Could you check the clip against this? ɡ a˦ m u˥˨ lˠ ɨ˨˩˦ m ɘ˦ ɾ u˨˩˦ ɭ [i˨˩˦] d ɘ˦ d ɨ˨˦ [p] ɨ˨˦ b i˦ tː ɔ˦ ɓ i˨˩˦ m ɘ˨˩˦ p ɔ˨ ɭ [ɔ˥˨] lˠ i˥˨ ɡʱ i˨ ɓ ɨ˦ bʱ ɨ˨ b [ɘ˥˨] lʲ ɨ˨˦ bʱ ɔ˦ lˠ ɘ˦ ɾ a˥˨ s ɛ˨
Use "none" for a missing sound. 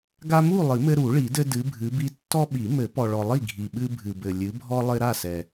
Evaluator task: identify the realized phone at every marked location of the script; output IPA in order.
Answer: i˨˩˦, bʱ, ɔ˨, ɘ˨

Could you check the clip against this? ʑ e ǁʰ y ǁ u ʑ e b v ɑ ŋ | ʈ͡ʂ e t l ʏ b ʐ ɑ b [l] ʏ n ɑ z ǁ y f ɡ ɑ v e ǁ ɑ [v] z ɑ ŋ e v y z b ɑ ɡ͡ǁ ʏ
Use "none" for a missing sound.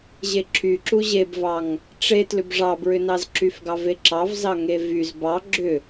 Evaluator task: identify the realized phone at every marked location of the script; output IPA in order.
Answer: ɹ, v

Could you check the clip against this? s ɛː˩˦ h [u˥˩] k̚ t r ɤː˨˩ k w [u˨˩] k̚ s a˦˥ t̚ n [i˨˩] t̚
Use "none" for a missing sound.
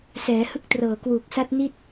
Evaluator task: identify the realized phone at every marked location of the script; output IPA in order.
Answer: ɯ˥˩, uː˨˩, i˥˩

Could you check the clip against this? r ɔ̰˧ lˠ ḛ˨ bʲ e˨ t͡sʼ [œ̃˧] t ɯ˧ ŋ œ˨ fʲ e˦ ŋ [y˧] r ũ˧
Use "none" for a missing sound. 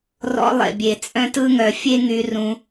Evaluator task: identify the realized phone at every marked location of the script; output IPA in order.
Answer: œ̃˧, y˧

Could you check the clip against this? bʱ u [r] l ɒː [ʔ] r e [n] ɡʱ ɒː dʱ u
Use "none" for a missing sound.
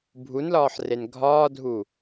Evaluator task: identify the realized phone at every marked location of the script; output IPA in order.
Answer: n, ħ, n

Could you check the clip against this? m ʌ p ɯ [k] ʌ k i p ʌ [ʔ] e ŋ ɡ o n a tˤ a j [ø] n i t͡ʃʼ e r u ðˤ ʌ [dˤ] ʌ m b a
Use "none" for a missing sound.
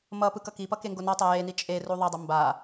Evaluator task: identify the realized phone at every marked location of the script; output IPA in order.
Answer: k, k, e, dˤ

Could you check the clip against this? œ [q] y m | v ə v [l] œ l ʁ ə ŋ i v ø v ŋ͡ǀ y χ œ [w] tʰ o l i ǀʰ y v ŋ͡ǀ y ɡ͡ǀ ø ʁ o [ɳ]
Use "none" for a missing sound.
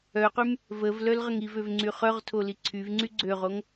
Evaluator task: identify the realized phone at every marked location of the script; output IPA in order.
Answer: q, l, ʁ, ŋ

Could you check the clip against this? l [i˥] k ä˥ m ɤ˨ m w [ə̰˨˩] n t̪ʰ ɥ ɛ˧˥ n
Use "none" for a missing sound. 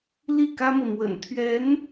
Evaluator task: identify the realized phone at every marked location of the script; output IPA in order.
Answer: i˥˩, ə̰˨˩

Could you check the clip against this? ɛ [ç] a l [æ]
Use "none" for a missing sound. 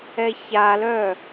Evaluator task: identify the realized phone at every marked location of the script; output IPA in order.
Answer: ç, œ

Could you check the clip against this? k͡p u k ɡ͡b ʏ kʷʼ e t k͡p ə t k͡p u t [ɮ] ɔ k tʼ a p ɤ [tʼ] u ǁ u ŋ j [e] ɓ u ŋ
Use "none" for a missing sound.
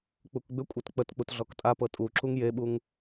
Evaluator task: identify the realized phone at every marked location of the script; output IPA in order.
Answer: ɮ, tʼ, e

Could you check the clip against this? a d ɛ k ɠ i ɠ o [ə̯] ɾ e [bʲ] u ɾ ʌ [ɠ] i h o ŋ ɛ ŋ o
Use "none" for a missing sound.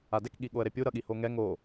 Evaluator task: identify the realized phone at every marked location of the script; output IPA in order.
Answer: ə̯, pʲ, ɠ

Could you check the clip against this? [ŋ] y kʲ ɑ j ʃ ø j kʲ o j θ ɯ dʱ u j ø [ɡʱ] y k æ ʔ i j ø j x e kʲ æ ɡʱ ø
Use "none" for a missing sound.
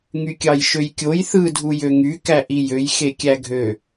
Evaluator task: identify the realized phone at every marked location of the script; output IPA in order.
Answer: ŋ, ŋ

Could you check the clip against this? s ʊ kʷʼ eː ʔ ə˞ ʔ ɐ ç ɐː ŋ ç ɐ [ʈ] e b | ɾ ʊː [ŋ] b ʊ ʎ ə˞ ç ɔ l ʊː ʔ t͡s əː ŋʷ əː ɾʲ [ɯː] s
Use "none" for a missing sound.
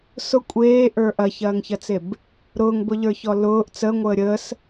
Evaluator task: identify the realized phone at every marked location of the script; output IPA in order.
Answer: t͡s, ŋ, əː

